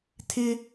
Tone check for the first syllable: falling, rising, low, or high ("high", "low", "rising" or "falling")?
high